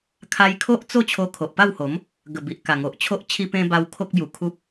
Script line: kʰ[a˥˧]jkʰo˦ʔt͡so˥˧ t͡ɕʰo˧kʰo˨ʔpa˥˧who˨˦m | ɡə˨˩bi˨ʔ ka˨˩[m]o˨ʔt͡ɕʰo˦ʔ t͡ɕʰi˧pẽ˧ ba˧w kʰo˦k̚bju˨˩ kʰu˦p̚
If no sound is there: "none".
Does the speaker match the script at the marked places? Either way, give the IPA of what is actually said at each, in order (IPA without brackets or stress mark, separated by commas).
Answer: a˧, ŋ